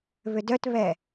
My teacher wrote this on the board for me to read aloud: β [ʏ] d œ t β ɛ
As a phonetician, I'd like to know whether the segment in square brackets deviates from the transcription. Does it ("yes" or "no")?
no